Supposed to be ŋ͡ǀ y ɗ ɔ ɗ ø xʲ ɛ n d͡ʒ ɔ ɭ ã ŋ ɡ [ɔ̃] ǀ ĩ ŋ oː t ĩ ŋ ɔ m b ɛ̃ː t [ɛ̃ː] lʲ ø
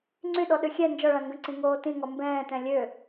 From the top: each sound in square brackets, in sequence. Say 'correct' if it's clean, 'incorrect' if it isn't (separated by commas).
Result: incorrect, incorrect